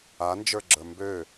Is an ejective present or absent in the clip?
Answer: absent